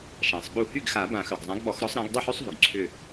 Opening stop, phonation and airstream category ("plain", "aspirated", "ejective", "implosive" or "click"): implosive